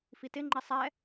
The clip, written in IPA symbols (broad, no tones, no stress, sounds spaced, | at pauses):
f i t ɪ ŋ͡ǃ i sˤ ɛ